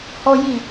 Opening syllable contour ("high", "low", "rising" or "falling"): high